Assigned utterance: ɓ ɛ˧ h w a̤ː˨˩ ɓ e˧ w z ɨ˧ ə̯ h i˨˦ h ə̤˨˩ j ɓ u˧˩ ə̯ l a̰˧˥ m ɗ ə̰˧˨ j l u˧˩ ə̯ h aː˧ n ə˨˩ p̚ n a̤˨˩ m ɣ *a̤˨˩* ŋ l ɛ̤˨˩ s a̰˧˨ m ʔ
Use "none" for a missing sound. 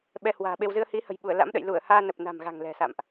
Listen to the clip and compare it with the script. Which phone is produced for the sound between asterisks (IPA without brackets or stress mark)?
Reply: a̤˨˩